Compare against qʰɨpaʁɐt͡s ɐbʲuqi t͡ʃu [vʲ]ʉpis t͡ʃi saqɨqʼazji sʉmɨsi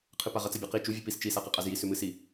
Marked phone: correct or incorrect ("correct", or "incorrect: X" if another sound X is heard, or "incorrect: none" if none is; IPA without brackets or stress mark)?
correct